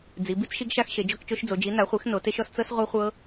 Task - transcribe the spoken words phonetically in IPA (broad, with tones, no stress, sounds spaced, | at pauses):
d͡z i˩˥ b i˦˥ t͡s ʃ i˦˥ ɡ ʃ a˦˥ x ʃ e˩˥ d͡ʒ ɔ˦˥ k t͡ʃ o˦˥ ʃ d͡z o˩˥ d͡ʒ i˩˥ n a˩˥ χʷ e˩˥ x n o˩˥ t e˦˥ ʃ ɔ˦˥ s t͡s ɤ˦˥ s ʁʷ a˦˥ χʷ ɤ˦˥